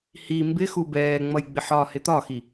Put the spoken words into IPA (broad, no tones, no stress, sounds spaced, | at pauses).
h i m b ɪ x u b ɛː ŋ͡m ʌ j ɡ͡b ɪ ħ ɒ h ɪ t̪ ɒ x i